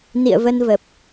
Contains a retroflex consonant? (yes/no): no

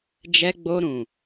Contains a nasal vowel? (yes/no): yes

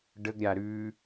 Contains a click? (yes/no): no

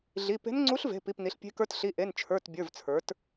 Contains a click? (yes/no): yes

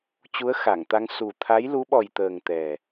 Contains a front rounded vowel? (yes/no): no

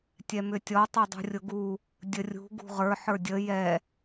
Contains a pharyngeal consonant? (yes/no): yes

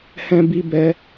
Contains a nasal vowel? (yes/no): yes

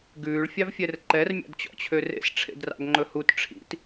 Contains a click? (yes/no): yes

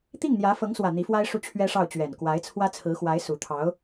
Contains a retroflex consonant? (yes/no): yes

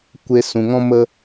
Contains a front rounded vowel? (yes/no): no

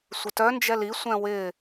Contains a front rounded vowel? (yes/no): yes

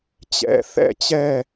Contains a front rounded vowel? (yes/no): no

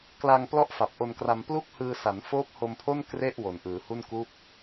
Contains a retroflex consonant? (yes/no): no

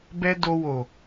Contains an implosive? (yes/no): no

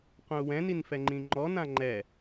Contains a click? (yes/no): yes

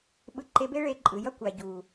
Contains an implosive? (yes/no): yes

